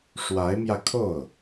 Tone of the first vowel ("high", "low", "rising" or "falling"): rising